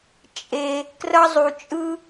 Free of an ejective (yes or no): no